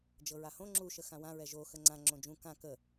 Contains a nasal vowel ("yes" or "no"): yes